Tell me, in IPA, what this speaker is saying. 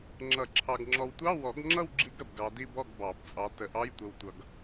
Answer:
ŋ͡ǁʌ˨˩˦ǁʰɑ˨ɡ ŋ͡ǁɔ˨wtʷɑ˧˥˧ wɔ˨˩˦ɡŋ͡ǁʌ˥˨w ɡ͡ǁi˦˥ɡɾə˨bɡɑ˨˦di˥˨ bɔ˥˨ɡbɑ˨˩˦bt͡sʼɑ˨˦ tə˨˦ʔɑ˧˥˧j tʷə˨wtʷʌ˨ɡ

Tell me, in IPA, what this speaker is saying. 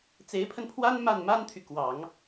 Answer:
t͡se˧˥ɪ̯pʰə˧npʰwa˥n ma˥˩n ma˥nt̪ʰy˨kwɑ˨˩˦ŋ

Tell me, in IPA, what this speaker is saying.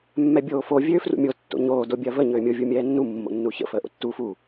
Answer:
mːɛbʲoːfo vʲøːfrṵmʲo tːo̰ɲoː dobʲɐːvə ɲøːmʲo vʲumʲɛːnːu mːo̰nːuçə̰ fəːʔo̰tːu fu

